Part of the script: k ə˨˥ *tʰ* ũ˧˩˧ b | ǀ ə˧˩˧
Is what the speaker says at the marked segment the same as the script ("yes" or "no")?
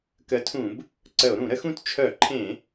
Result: yes